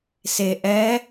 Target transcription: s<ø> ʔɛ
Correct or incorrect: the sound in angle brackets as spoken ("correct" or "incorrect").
incorrect